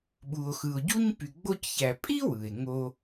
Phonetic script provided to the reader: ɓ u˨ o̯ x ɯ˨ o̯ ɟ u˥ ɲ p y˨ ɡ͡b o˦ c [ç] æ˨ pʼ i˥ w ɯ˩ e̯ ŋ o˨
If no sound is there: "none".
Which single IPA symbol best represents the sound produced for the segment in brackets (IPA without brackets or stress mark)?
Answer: ç